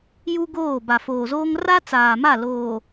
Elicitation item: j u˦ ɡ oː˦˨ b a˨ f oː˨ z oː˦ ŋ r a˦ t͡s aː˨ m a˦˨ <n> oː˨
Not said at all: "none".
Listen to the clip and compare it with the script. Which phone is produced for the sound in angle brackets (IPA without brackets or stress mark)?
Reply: l